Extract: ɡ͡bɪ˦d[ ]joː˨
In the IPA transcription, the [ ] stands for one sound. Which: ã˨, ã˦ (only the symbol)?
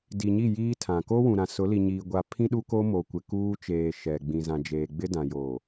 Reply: ã˨